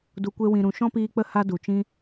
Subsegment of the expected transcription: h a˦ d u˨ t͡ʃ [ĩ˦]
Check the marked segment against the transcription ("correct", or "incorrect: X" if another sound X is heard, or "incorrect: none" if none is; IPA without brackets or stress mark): correct